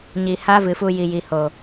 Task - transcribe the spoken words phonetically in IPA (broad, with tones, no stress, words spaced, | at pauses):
ɲi˨ ha˦vɨ˨fu˧ji˨ ji˨ ho˨